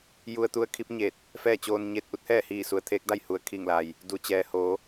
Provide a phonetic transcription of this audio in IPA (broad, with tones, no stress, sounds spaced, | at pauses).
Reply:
j u˧ ə̯ t̪ u˧˥ ə̯ kʰ i˧˥ p̚ ɲ e˧˩ t̚ | f ɛː˥˨ t͡ɕ oː˧ n ɲ e˥˨ t̚ ʔ u˧˥ t̚ h ɛː˥˨ h iː˧˩ s u˩ ə̯ t̪ʰ eː˧˥ k̚ d a˥˨ j h u˩ ə̯ kʰ i˧˩ ŋ l a˩ j | d u˩ t͡ɕ ɛː˩ h oː˩˧